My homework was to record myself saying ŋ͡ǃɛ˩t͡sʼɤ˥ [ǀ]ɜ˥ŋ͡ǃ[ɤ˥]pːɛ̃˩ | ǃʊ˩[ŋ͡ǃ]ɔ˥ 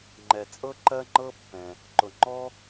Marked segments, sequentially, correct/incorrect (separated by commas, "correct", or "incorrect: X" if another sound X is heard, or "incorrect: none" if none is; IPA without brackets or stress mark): incorrect: ǃ, correct, correct